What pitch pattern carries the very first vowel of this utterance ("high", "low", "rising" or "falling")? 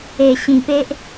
low